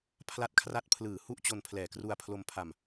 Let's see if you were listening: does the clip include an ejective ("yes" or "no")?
no